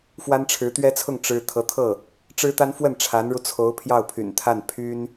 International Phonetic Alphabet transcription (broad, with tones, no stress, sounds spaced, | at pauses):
f w a˥ n ʈ͡ʂʰ ɻ̩˧˥ t̪ ɥ ɛ˥ t͡sʰ ʊ˥˩ ŋ ʈ͡ʂ ɻ̩˥ t̪ʰ ɤ˧˥ t̪ʰ ɤ˥˩ | ʈ͡ʂ ɻ̩˥ t̪ a˥ n f w ə˥˩ n ʈ͡ʂʰ a˧˥ n ɻ u˧ t͡sʰ o˧˥ ʊ̯ pʰ j ɑ˥˩ ʊ̯ pʰ y̰˨˩ n t̪ʰ a˥˩ n pʰ y˥ n